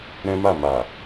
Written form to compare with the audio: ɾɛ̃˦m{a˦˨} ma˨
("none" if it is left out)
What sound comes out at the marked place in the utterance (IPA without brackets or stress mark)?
a˦˨